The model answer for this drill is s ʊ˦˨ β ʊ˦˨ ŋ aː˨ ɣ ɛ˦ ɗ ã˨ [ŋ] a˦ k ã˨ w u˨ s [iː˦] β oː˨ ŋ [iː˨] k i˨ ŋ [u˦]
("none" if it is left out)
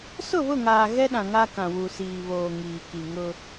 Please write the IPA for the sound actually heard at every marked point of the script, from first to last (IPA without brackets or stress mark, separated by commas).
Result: ŋ, iː˨, iː˨, ʊ˦